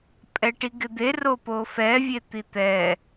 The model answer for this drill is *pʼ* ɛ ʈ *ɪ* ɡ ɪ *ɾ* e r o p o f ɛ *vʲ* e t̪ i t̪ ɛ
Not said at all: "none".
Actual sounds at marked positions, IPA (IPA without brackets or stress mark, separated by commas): pʼ, i, d̪, vʲ